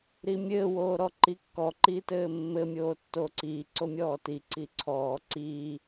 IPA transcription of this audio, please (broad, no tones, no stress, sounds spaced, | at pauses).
ɾ i mʲ ɘː w oː ɾ ɔ ǃ i kː ɔ ǃ i t ɘː mː ɘ mʲ oː tː oː ǀ iː ǀ o mʲ ɔː t i ǀ i ǀʰ ɔː ǀ i